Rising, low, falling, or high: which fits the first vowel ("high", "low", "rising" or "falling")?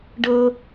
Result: high